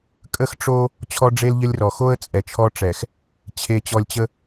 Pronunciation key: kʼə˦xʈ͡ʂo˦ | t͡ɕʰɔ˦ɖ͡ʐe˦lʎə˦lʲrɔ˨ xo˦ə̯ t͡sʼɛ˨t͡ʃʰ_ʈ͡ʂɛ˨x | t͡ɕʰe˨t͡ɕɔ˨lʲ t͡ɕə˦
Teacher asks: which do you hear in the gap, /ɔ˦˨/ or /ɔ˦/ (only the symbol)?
ɔ˦